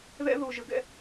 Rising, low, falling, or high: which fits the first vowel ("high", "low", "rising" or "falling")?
high